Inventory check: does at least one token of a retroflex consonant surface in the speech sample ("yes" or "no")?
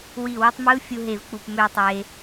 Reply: no